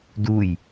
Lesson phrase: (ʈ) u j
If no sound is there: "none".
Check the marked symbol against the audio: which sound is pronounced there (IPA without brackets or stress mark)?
d